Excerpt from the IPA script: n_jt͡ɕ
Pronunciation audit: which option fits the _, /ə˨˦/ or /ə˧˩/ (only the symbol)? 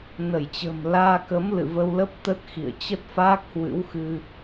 ə˧˩